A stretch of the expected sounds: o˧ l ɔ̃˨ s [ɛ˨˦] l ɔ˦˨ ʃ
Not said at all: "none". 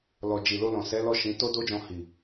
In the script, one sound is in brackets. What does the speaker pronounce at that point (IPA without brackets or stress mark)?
ɛ˨˦